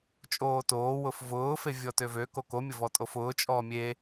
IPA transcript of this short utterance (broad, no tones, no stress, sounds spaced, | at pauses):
t͡ʃʼ oː t oː w ʊ f v ʊː f e vʲ ɔ t ø v ø k o k o mʲ ʊ v ɔ tʼ o f ʊː t͡ʃʼ ɔ mʲ e